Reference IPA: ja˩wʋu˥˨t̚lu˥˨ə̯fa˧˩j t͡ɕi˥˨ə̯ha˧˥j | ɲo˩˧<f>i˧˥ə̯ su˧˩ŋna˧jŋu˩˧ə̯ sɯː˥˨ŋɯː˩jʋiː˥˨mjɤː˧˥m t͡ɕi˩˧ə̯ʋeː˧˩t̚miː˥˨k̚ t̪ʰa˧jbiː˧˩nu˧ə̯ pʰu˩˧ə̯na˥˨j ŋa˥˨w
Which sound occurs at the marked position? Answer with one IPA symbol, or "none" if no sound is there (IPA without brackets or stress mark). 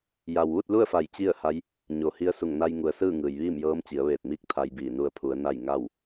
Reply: h